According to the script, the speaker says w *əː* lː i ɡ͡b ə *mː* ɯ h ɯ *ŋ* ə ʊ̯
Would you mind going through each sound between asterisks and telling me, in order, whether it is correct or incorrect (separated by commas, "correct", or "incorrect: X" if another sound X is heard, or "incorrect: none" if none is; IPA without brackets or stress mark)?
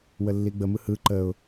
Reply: incorrect: ə, incorrect: m, incorrect: ǃ